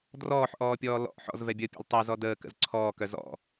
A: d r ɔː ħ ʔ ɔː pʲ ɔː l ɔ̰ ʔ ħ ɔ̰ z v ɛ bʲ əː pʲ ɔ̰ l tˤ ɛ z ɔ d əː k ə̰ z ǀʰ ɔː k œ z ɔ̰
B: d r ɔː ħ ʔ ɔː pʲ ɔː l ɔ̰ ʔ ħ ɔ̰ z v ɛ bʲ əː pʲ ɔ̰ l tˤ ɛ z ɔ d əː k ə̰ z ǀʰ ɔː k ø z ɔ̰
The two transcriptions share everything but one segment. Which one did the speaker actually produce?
A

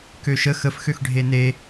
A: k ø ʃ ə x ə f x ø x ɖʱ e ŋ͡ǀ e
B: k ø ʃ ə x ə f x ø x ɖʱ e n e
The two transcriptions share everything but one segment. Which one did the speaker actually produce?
B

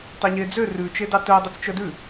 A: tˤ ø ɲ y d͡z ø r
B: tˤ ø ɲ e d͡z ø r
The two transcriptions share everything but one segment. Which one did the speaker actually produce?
B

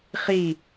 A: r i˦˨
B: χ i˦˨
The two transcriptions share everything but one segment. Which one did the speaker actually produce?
B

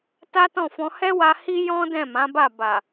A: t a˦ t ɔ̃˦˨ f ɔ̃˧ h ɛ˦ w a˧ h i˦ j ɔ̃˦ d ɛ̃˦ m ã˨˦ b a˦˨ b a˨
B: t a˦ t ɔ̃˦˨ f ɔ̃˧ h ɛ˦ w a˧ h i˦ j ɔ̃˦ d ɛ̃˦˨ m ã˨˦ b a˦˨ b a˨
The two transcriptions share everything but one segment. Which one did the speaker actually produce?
B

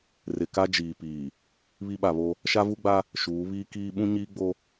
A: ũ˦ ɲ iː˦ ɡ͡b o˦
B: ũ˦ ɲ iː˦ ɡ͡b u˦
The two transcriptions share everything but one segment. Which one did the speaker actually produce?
A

